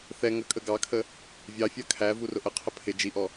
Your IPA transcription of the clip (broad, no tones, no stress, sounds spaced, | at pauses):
θ ɛ ŋ ə kʼ ə ɡ ɑ kʰ ə | vʲ ɑ fʲ ɜ kʰ æ v u r ʊ ʔ ə qʰ ə pʰ ɪ d͡ʒ i ʔ ɔ